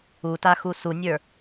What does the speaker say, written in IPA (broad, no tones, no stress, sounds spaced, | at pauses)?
u t a x u s u nʲ ə˞